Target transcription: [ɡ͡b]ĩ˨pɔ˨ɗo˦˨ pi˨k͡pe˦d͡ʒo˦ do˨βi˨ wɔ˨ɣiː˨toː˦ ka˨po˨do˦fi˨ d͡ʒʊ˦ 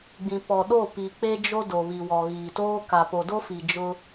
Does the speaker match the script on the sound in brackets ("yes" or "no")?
yes